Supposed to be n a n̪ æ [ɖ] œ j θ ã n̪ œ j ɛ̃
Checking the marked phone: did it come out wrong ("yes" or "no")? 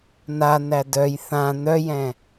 yes